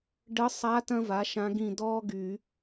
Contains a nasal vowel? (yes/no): yes